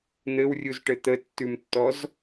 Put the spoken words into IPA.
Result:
n̪ ɘ w rʲ u z ʈ ɘ t̪ ə tː ʉ m tː ɔ z

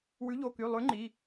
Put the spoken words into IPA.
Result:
w ʉ˨˥ ʎ o˩˧˩ k y˩˧˩ lˠ ʉ˨˥ ŋ͡ǃ i˩˧˩

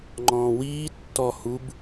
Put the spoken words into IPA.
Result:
ŋ͡ǃ ɔ̃ː w iː tː ɔ h u b

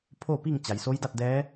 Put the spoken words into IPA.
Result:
pʰ o˥˨ p i˥˨ ŋ t͡ɕ a˩ j s o˧˥ j d a˥˨ t̚ d ɛː˧˥

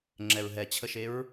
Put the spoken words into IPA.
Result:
ŋ͡ǁ ɛ ɹ ɦ ɛ t͡ɕʰ ə ʃ e ɹ

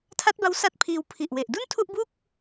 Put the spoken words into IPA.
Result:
tʰ a˦˥ t̚ b a˦˥ w s a˦˥ t̚ pʰ iː˧ w pʰ i˨˩ ʔ w e˨˩ ʔ d u˥˩ n tʰ u˥˩ ʔ b u˥˩ k̚

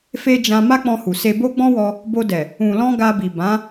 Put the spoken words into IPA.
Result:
f e˧ d͡ʒ ã˧ m a˦ k͡p ɔ̃˧ h u˨ s e˧ b o˦ ɡ͡b ɔ̃˦ w ɔ˧ | b o˧ d ɛ˨ | ũ˨ l ɔ̃˧ ɡ a˧ b i˨ b ã˨˦

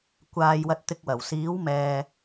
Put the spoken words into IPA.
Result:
kʷ aː˧ j w ɐ˧ t̚ t̪ ɪ˧ k̚ w ɐ˨˩ w s iː˨˥ w m ɛː˨

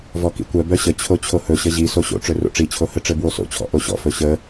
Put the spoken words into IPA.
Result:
v ɔ k ḭ kʷ œ b œ ɕ ə t͡ɕʰ o t͡ɕʰ o h ɵ ɕ ə ʑ i s o ɕ o̰ ʈ͡ʂ ɵ r o̰ ʈ͡ʂ i t͡ɕʰ o h ɘ ʈ͡ʂ ɘ b w o s o̰ t͡ɕʰ ɔ̰ ʔ o ɕ ɔ̰ f ɵ ɕ ə

